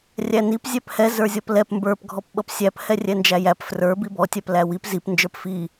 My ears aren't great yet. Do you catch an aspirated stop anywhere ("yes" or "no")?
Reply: no